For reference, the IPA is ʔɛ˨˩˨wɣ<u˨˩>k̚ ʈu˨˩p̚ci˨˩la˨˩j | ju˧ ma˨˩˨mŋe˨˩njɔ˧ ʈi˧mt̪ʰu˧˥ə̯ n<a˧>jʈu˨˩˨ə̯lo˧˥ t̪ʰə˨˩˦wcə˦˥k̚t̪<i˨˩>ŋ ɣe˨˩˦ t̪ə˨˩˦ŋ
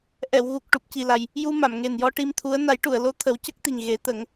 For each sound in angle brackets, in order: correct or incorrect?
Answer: correct, incorrect, correct

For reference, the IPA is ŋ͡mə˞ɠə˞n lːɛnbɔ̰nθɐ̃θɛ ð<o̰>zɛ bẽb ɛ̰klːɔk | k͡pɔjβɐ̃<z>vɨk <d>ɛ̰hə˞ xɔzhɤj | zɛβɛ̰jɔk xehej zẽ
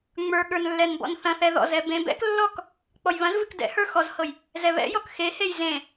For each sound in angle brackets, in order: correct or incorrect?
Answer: incorrect, correct, correct

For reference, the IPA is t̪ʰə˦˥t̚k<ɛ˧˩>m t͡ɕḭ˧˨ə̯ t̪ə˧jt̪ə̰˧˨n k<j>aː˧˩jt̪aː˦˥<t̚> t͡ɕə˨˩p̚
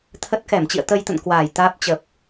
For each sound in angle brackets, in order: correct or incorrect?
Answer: correct, incorrect, incorrect

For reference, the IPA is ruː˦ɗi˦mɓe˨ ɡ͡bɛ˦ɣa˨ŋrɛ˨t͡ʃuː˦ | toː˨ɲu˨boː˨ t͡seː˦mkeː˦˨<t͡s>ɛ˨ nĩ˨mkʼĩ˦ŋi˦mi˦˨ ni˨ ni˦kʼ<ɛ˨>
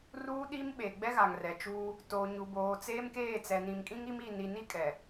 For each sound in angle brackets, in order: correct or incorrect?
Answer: correct, correct

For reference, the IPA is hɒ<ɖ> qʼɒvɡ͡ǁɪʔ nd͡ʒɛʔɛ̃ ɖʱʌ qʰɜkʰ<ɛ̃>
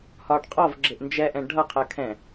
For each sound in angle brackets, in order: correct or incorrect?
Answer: correct, correct

